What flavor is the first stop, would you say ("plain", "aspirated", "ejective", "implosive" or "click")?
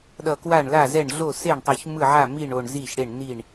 implosive